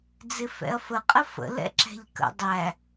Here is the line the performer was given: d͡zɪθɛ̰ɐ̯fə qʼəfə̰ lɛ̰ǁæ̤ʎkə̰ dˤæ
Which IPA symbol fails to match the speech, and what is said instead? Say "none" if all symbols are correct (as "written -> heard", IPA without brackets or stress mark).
θ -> f